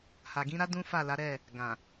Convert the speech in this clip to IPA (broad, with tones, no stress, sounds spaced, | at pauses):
h a˨ ɡ ĩ˨˦ ɾ a˦ d ũ˦ f a˦˨ l a˨˦ ɾ ɛ˦˨ | ɡ ã˨